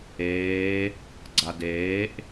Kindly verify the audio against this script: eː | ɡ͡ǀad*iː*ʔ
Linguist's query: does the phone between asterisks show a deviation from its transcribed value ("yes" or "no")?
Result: yes